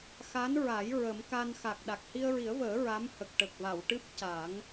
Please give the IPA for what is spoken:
x a˧˥ n ɹ a˨˩˦ j ɹ ə˨˩˦ m k a˧ n x a˨˩ k̚ ɗ a˨˩ k̚ h i˧ ə̯ ɹ i˨˩˦ ə̯ v əː˨˩˦ ɹ a˧˥ m h ə˨˩ k̚ ʈ ə˨˩ k̚ v a˨˩˨ w ʈ ɨ˦˥ p̚ c a˨˩˦ ŋ

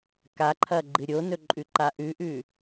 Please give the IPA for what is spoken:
k a ǃʰ ɐ ɡ͡ǃ ɨ ɾʲ o n ɵ ǃʼ ʉ ǃ a ʔ ʉ ʔ ʉ

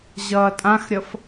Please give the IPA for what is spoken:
ʑ ʌː tʼ ã x ɾʲ ʌ f

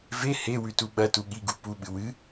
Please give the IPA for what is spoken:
v e h e w ʉ t u ɓ ɐ t u ɠ i ɡ u p u ɓ ɨ w ɨ

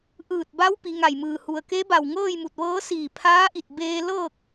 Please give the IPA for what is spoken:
ʔ ɯː˧˩ t̚ b a˧˥ w p i˩˧ ŋ a˧˩ j m ɯː˧˩ h u˩ ə̯ k e˧˥ b a˧˩ w ŋ ɤː˥˨ j m u˧˩ t̚ ʋ ɤː˧˥ s iː˧˩ pʰ aː˧˥ ʔ i˧˩ t̚ b eː˧ l ɤː˥˨ k̚

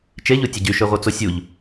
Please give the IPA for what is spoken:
t͡ʃ e ʎ u tʲ ə ɟ y ʃ ø ʁʷ œ t͡s o sʲ u ʎ

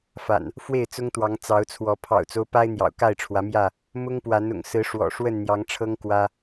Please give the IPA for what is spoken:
f a̰˨˩ n | f w e˥˨ ɪ̯ t͡s ʊ˦ ŋ t̪ w ɑ˨˦ ŋ t͡s ɑ˨˦ ʊ̯ t͡sʰ w ɔ˨˦ pʰ ɑ̰˨˩ ʊ̯ t͡s o˦ ʊ̯ p a˦ ɪ̯ n̪ j ɑ̰˨˩ ʊ̯ k a˥˨ ɪ̯ ʈ͡ʂʰ w ä˨˦ m j ä˥˨ | m ʊ˦ ŋ p w a˨˦ n ʊ̰˨˩ ŋ s ɹ̩˨˦ ʂ w ɔ̰˨˩ ʂ w ə˥˨ n n̪ j ɑ˨˦ ŋ ʈ͡ʂʰ ɤ˦ ŋ k w ä˦

